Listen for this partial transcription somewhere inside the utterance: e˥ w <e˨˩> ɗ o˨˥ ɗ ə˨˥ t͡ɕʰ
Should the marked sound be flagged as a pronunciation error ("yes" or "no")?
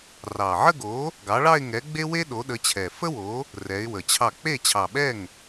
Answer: yes